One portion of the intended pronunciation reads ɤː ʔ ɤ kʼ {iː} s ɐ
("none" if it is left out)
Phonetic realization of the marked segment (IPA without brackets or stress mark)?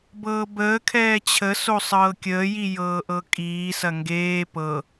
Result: iː